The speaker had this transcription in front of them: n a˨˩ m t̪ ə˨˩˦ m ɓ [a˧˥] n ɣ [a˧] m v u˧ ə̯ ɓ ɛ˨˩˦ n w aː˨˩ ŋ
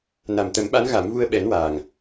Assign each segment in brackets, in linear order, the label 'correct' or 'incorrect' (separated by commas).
correct, incorrect